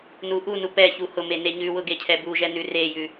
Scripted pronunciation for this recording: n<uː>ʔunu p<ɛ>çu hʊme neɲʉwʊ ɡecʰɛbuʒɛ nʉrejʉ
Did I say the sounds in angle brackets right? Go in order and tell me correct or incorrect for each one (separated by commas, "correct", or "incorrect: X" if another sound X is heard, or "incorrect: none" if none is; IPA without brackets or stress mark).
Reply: incorrect: u, correct